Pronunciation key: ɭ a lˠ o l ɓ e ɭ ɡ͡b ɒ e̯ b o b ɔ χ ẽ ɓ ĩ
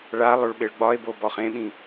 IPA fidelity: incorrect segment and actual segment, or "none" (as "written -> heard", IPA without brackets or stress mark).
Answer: l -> ɭ